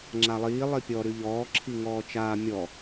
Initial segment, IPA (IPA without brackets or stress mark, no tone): ŋ͡ǁ